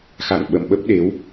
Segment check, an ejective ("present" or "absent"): absent